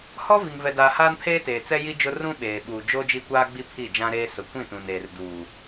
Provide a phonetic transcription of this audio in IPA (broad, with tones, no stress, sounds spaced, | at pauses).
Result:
h ɔ˦ v i˨ ŋ v ɛ˨ d aː˨ h aː˦ n pʰ eː˦ t eː˨ t͡s ɛ˦ j i˦ d͡ʒ ʊ˦ r ũ˦ ɓ eː˨ ɓ uː˨ d͡ʒ oː˦ d͡ʒ i˦ kʷ aː˦ ɡ͡b i˦ pʰ i˦˨ d͡ʒ ã˦ ɾ eː˦ s ʊ˨ kʷ ĩ˦˨ t ũ˨ n eː˨ r d uː˨